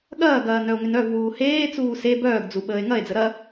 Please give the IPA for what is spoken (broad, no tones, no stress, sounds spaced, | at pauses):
ɠ ɐː ɡ ɐː n œ o̯ ŋ ʏ n œ v w uː h eː t͡s uː s e b œː ɡ d͡z u ɓ əː e̯ ŋ ɐ e̯ d͡z ə ɾ ɐ